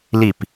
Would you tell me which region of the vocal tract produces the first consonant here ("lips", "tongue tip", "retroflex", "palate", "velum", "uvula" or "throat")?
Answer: tongue tip